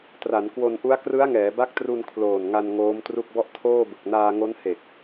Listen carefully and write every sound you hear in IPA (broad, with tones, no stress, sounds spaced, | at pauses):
t r a˩˦ n k w o˧ n ʔ u˦˥ a̯ k r ɯ˦˥ a̯ ŋ ɛː˩˦ b a˦˥ k̚ t r u˧ n kʰ l oː˨˩ n ŋ a˧ n ŋ oː˦˥ m t r u˥˩ k̚ b ɔ˥˩ ʔ tʰ oː˥˩ b ɯ˨˩ k̚ n aː˧ ŋ o˦˥ n h e˨˩ k̚